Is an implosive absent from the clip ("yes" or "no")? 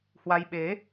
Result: no